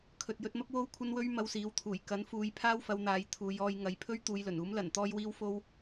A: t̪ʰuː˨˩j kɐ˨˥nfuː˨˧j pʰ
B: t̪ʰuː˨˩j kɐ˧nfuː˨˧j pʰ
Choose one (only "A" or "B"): A